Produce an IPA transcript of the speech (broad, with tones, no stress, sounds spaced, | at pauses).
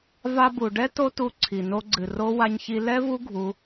v a˧ b u˨ ɖ ɛ˦ t o˦ t u˧ ǀʰ i˨ n o˧ ɡ͡ǀ ɨ˨ r o˦ w a˧ ɲ ç i˧ l ɛ˦ v u˦ ɡʱ u˦